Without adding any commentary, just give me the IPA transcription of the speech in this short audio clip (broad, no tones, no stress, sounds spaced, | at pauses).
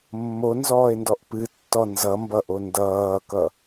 mː o n z ɔː e̯ n d ɔ ʔ p ɨ tː ɔ n z ʌ m b ʌ ʔ o n d ʌː k ʌ